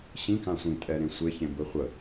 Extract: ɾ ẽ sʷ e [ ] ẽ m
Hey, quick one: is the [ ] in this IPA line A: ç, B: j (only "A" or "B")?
A